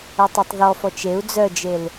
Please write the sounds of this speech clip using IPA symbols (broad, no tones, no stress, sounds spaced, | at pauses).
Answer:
œ tˤ ɛ tˤ ð ɔ f ɔ t͡ʃ e u̯ d͡z œ d͡ʒ e l